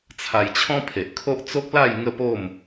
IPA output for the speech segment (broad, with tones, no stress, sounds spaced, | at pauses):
t͡sʰ a˧ j t͡ɕʰ ɔ̃˦ pʰ e˨ ʔ kʰ o˦ ʔ t͡s o˦ k̚ l a˥˧ j ŋ ə˥˧ p o˥˧ m